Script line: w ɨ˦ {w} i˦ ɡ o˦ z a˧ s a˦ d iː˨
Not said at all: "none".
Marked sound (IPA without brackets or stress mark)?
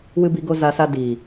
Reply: b